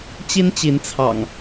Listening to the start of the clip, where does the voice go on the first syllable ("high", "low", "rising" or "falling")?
high